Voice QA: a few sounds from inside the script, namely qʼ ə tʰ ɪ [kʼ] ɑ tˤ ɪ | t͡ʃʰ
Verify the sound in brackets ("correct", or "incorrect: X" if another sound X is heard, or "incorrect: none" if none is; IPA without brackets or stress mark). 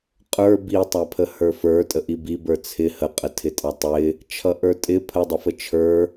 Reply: incorrect: tʼ